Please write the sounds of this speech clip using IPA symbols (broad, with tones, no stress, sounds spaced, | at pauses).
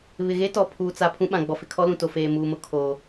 β ɪ˨ ɣ e˦ t ɔ˨ pʰ uː˨ t͡s a˨ pʰ ũ˦ ɓ ã˨ ɡ͡b ɔ˨ f ɪ˨ kʰ ɔ˦ l ũ˨ t o˨ f eː˨ m uː˨ m ʊ˨ kʰ oː˨